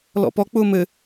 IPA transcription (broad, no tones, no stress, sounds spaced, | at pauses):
l ɔ̰ p ɔ k͡p ʊː m ɘ